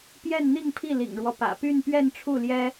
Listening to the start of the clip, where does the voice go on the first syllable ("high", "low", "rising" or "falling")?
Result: falling